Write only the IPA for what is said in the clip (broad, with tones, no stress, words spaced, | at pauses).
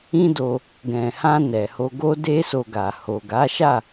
ĩ˦do˧ | ɡɛ̃˨hã˧ nɛ˨ho˧ ɡo˦de˦so˧ɡa˨ ho˨ɡa˨˦ʃa˦˨